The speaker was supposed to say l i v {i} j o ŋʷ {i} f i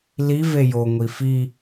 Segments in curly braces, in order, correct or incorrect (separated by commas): incorrect, correct